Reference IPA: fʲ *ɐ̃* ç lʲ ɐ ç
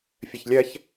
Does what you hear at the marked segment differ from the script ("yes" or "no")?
yes